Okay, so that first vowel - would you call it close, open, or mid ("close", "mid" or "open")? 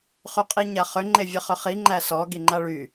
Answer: close